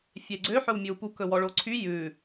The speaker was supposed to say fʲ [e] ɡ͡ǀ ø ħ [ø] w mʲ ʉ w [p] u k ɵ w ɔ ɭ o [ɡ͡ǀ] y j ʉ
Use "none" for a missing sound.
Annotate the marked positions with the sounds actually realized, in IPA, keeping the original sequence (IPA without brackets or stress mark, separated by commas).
e, ɵ, p, ǀʰ